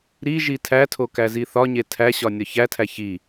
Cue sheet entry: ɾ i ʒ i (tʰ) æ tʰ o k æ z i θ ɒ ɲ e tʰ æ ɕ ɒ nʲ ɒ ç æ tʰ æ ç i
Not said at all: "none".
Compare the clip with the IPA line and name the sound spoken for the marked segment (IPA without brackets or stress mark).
tʰ